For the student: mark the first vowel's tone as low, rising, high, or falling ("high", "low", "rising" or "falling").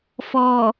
low